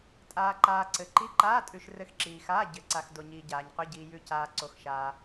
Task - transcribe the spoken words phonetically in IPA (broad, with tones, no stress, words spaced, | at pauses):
tʼaː˩ǃaː˩ ǀɘ˩ ǃi˩˧˩ǃaː˩˧˩tʼʉ˩ʃ rɘ˩˧˩xǁiː˩xaː˩˧˩ ɟɘ˩ǀa˩x do˩ɲiː˩ ɟaː˩ɲqʏ˩˧˩ɟiː˩ jʉ˩caː˩ ǀo˩xʃaː˩